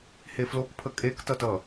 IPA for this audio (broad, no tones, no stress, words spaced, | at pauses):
heflokpʰə kʼektʌtʌ